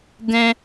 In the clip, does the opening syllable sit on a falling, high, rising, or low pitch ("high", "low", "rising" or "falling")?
high